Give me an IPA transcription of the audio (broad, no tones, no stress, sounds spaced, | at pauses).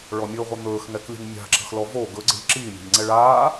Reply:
ɭ ɔ mʲ ɵ ʁʷ ə n̪ ɵː x ŋ ɛ k lʲ ə̤ ŋ mʲ a̤ ǁ ə̤ x l ɔ v o ɡ ɵ ɡ͡ǀ ə̤ ʎ ǁ iː mʲ a̤ ʎ ŋ͡ǀ ɛ ɭ aː